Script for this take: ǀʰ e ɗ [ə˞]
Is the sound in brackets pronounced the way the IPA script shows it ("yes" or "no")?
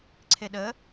no